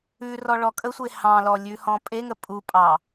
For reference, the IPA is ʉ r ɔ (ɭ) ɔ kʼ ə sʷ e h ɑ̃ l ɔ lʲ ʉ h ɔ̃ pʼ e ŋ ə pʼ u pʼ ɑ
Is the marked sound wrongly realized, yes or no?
no